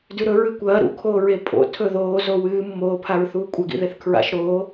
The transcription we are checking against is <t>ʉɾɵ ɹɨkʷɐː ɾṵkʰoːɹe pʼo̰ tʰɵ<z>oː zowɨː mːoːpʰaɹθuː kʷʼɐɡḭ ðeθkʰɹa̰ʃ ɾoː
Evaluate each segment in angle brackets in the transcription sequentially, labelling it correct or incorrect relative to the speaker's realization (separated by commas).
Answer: incorrect, incorrect